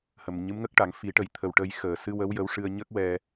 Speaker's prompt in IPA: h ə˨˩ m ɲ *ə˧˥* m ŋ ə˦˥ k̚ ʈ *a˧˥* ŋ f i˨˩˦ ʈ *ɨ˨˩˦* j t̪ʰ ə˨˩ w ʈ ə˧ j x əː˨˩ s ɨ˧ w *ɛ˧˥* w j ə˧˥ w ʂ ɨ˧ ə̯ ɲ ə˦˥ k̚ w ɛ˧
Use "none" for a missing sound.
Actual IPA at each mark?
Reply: ɨ˧˥, a˨˩˦, ə˨˩˦, ə˧˥

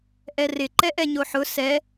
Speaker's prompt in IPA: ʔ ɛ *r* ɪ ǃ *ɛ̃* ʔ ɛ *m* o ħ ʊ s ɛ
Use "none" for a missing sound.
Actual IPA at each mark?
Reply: r, ɛ, ɲ

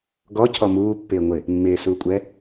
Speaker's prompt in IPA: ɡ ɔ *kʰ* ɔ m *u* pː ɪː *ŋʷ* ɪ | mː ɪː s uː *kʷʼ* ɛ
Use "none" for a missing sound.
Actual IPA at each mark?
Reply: cʰ, uː, ŋʷ, kʷʼ

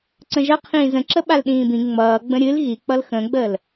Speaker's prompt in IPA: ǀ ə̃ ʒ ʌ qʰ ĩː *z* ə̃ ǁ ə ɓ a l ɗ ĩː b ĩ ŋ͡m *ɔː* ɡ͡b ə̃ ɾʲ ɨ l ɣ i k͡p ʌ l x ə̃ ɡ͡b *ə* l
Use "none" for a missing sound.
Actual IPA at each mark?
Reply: z, ʌː, əː

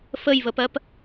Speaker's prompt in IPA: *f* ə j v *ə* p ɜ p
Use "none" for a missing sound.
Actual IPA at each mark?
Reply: f, ə

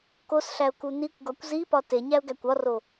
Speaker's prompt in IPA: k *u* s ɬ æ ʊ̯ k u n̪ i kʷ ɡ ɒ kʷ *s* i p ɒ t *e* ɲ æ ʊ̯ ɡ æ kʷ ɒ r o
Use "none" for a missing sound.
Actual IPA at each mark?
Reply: o, z, e

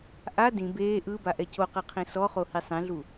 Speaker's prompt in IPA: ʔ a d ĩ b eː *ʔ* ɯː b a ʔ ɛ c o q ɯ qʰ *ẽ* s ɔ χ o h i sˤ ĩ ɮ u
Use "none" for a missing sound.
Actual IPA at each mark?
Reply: ʔ, ĩ

